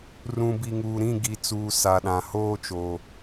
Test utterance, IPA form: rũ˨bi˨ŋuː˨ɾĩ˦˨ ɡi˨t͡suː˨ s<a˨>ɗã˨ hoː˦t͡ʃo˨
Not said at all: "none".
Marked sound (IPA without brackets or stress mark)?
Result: a˨